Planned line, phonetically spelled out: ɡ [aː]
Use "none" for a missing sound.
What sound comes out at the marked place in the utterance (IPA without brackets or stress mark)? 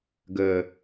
əː